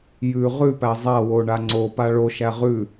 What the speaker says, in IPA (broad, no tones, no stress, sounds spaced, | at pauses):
j ʉ ʁ ʉ p æ zˤ a w o ɳ a ŋ͡ǀ o p a ɭ o ʃ æ ʁ ʉ